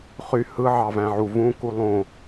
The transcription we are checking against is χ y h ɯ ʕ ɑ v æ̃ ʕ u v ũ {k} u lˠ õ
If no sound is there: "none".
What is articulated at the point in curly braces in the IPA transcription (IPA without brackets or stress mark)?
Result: k